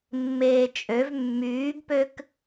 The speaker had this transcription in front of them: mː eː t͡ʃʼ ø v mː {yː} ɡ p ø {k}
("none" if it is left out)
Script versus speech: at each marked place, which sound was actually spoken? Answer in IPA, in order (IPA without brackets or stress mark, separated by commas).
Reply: yː, k